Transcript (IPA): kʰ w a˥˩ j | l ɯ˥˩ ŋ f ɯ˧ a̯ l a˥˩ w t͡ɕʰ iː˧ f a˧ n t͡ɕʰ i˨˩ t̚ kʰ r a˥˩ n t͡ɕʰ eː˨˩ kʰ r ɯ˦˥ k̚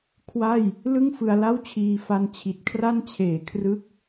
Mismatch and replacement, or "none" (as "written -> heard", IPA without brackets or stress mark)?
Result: none